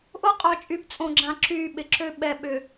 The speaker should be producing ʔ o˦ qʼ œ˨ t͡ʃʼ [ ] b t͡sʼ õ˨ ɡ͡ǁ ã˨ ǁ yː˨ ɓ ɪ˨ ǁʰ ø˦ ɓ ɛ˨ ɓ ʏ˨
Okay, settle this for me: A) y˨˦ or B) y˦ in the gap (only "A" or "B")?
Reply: A